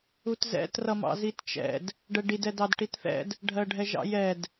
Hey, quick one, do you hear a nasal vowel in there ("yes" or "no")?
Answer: no